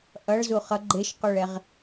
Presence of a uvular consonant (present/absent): present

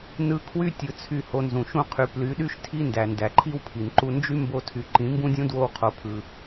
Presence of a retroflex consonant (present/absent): absent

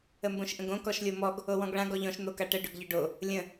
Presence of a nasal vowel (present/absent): present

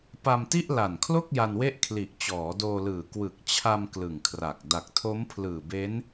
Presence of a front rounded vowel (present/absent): absent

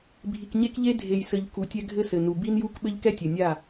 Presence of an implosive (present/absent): present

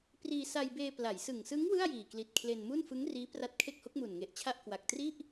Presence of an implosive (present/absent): absent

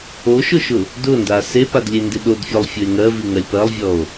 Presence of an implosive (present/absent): present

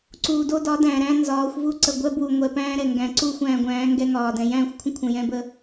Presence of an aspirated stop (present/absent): present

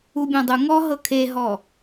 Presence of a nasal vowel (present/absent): present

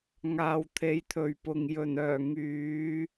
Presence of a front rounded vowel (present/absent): present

